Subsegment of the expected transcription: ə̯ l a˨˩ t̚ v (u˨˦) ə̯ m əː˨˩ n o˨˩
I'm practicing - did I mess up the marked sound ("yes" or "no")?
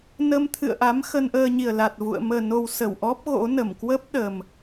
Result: yes